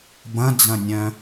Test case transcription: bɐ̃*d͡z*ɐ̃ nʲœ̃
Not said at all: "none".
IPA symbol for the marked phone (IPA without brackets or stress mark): d͡z